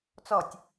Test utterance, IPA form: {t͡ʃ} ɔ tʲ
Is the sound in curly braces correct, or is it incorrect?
incorrect